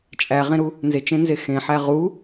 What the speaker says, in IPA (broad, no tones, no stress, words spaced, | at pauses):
t͡ʃʼæʁẽɾu | nzet͡ʃẽnze xẽħæ ʁu